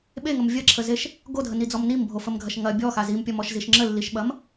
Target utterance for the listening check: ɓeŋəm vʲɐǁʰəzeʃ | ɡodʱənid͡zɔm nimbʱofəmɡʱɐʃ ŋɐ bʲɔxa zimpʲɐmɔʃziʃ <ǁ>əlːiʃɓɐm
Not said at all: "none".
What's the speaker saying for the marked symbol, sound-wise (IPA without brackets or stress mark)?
ŋ͡ǁ